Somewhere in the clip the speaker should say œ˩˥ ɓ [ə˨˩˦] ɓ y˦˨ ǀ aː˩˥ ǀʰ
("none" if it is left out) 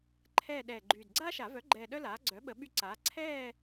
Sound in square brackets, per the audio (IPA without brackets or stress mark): ə˨˩˦